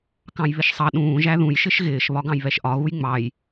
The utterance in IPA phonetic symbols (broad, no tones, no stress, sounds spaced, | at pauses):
k ɑ̃ j β ɪ ʃ sˤ ɑ ɗ ũː ʒ æ ð ũ j ʃ ɪ ʃ ɣ ɪː ʃ β ɒ ɡ ɑ̃ j β ɛ ʃ ʔ ɒ ɣ u j ŋ͡m ɑ j